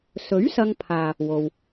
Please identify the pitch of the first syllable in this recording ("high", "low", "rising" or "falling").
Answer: rising